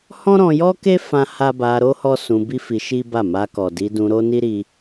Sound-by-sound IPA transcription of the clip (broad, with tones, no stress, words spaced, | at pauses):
hɔ̃˦ɾɔ̃˧jɔ˦ke˦ fã˦ha˦ ba˧ɾo˦ hɔ˦sũ˧bi˦fi˧ ʃi˦ba˦˨ ma˧kɔ˨ di˧dũ˧ɾo˦ ni˦ɾi˧